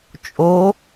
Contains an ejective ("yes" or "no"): yes